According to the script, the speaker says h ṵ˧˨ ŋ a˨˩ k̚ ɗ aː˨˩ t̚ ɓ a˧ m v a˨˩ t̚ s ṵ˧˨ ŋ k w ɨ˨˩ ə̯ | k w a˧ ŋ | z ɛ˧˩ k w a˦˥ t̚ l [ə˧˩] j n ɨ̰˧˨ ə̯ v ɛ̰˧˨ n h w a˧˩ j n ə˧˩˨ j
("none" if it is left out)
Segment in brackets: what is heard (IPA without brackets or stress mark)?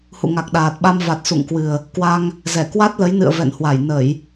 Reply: ə˨˦